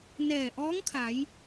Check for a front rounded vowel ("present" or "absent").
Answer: absent